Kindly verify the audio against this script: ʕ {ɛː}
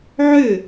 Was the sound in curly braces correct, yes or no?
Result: no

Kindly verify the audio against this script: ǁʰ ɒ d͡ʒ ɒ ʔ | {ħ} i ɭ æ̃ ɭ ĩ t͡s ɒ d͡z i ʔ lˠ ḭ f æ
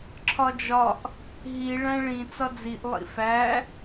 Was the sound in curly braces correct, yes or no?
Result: no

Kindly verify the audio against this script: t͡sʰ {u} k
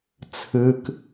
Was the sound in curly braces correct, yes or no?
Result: no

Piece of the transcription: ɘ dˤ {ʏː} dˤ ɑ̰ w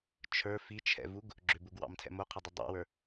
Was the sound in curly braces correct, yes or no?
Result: no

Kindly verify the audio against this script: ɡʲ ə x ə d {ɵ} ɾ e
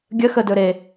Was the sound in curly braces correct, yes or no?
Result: yes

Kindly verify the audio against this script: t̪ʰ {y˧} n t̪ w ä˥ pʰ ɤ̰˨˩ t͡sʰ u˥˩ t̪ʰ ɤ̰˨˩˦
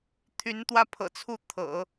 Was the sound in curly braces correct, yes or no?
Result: no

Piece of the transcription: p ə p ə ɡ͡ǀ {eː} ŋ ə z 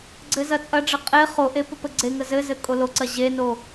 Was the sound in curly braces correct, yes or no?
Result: no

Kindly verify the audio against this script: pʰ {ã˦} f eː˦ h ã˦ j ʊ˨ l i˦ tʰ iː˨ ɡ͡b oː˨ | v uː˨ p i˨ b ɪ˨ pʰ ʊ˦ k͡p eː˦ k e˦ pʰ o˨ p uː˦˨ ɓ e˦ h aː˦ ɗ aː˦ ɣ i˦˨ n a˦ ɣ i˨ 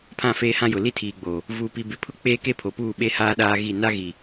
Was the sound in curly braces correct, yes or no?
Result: no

